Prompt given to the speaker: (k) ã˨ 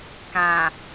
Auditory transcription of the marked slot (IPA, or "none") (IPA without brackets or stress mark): k